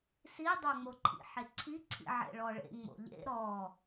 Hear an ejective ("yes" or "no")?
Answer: no